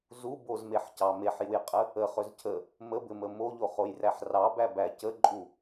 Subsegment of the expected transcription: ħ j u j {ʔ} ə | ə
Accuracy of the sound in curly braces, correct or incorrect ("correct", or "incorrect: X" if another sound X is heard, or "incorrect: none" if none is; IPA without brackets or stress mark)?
incorrect: qʼ